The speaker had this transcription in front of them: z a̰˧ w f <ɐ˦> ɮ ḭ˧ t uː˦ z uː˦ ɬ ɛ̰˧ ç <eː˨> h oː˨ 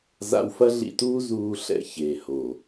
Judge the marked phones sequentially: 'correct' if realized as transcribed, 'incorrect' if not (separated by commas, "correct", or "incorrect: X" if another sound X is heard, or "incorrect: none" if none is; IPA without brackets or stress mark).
correct, correct